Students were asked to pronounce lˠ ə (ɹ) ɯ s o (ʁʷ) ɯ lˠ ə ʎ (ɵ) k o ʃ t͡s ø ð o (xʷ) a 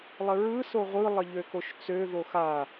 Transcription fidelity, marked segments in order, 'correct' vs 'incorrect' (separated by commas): correct, correct, incorrect, incorrect